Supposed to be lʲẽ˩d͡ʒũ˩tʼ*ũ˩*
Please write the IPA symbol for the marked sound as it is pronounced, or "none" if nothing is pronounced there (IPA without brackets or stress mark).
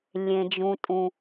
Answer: ũ˩